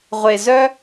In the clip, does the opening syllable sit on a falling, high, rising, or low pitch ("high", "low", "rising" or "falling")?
low